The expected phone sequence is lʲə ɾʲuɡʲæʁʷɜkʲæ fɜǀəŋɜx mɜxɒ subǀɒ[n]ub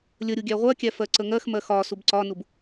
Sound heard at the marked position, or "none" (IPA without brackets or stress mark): n